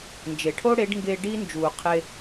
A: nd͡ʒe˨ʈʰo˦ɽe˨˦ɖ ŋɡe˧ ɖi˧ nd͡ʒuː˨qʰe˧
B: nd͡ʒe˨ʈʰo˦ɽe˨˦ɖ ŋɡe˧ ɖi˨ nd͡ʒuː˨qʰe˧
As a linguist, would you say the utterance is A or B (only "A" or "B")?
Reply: A